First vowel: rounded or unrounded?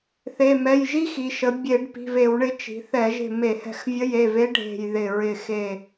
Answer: unrounded